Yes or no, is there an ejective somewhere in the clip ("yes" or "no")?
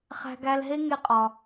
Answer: yes